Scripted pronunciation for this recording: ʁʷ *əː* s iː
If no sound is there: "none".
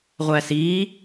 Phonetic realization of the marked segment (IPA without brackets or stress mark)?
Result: æː